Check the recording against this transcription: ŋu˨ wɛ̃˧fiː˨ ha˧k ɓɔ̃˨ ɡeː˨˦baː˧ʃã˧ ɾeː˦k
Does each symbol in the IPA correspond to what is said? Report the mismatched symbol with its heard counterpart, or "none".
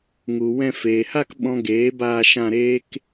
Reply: iː˨ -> eː˨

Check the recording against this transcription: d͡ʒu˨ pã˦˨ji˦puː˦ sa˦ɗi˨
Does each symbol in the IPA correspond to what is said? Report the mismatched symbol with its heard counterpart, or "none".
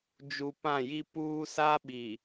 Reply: ɗ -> ɓ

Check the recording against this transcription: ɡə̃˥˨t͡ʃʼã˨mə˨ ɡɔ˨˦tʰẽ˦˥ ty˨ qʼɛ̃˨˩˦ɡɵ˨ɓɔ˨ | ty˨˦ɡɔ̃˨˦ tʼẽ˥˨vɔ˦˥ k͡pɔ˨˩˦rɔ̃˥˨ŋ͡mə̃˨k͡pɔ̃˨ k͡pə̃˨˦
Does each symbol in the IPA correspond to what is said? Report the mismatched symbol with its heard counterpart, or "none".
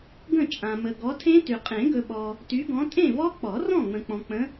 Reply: ɛ̃˨˩˦ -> ẽ˨˩˦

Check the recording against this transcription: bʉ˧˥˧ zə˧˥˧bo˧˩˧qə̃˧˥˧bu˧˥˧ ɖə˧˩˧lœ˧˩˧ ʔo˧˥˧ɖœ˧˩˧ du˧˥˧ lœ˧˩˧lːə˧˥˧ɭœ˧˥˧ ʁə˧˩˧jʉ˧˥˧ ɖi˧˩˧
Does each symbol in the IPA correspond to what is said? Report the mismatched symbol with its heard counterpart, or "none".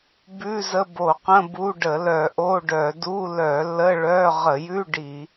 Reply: none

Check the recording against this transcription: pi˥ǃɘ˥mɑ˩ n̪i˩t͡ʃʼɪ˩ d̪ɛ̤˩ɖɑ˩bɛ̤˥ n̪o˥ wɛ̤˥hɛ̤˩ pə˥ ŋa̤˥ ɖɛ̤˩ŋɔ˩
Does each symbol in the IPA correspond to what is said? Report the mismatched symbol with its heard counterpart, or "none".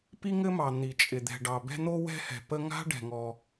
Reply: ǃ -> ŋ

